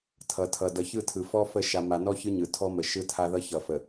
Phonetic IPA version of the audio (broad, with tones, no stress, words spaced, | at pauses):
tʰʌ˨tʰʌ˨ dʌ˨çɯ˦˨tʰɯ˨ fɔ˦fə˦˨ ʃa˨ma˨nɔ˦ çɯ˦ɲɯ˨tʰɔ˦mə˨ ʃɯ˦tʰa˦ðʌ˦ çʌ˨ fə˨